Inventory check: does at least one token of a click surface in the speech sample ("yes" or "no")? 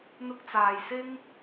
no